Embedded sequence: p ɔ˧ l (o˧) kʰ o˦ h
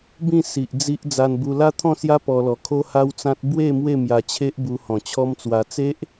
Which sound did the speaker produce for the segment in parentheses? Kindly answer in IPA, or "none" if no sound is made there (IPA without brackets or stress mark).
ɔ˧